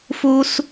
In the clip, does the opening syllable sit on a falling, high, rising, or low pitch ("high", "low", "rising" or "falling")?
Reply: high